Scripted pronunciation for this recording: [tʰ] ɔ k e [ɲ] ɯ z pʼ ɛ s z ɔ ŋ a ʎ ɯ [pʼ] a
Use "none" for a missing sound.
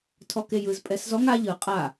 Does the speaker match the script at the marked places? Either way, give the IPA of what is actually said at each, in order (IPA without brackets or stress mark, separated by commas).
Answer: tʰ, j, qʼ